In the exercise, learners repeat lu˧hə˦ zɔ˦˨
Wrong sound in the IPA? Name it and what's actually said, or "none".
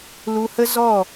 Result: none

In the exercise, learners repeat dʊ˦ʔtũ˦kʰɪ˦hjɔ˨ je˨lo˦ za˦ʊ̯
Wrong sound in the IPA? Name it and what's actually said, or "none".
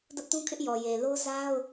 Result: h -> ʔ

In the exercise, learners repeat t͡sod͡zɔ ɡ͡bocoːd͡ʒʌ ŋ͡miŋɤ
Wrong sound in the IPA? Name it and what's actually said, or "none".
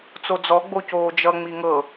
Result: none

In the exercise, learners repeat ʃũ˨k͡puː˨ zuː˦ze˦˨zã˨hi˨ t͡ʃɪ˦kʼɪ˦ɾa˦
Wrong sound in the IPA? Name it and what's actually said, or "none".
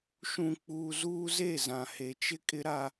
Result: i˨ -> e˨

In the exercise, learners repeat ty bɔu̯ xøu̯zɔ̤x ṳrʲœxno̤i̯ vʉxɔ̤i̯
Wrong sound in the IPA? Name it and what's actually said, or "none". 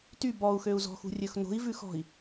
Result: œ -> ɵ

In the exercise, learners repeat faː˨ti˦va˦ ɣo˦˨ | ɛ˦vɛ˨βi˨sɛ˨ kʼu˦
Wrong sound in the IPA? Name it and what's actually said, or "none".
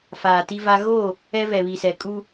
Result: none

